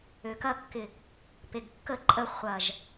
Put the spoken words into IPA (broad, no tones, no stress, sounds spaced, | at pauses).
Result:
ø k ɐ kː ɪ | p e ɡ kː ə ǃʼ ə χʷ ɐ ʒ